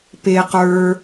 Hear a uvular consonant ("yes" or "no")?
yes